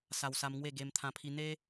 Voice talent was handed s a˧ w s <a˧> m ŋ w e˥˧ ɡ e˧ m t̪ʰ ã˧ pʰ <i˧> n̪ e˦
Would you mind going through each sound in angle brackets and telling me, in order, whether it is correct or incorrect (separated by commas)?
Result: correct, correct